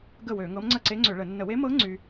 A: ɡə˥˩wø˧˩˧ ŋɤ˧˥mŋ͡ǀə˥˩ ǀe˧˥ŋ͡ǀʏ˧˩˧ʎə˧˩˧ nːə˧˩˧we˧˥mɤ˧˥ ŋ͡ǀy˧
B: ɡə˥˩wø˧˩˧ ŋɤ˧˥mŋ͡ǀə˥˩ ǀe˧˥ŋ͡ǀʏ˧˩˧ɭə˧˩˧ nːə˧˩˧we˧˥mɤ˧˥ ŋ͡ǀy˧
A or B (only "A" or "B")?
B